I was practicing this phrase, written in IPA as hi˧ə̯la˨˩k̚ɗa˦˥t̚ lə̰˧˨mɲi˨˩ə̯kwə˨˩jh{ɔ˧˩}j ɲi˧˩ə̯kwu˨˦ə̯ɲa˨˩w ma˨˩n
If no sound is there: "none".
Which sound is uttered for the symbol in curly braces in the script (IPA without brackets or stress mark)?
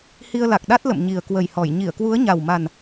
ɔ˧˩